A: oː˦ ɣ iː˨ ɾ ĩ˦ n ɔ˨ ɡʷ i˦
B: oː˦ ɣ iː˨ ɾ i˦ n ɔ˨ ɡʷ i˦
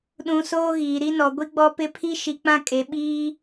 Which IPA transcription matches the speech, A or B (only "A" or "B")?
B